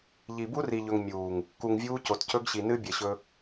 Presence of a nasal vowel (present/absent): absent